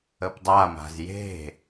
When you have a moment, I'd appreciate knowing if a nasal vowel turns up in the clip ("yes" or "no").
no